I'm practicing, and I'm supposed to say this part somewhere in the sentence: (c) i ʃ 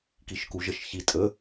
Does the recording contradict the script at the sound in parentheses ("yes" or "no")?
yes